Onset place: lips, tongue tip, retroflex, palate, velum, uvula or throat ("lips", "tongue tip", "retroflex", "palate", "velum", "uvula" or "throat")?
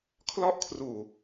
velum